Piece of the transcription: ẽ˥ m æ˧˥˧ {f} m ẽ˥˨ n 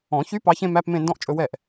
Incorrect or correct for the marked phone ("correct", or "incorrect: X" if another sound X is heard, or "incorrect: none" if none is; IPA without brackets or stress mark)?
incorrect: p